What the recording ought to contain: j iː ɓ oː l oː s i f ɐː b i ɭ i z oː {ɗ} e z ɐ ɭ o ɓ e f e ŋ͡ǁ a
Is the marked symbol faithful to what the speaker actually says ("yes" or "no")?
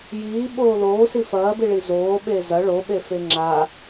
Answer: no